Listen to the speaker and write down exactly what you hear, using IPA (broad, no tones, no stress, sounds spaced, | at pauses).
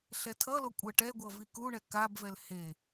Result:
ɬ ɛ tʰ ʌ l o kʷʼ ɛ ʈ ɛ ɡʷ ʌ v i k u ɳ ɛ k a b v ɛ l h e